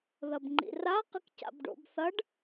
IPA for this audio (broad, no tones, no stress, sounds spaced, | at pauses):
ð ɐ b ŋ͡ǃ ḭ r a q ɨ k c a̰ b ɖ o̰ b θ ɐ ɖ